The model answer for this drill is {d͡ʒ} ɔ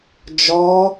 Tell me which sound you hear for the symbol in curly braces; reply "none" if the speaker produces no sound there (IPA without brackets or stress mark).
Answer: d͡ʒ